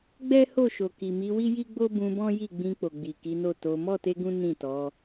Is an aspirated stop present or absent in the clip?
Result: absent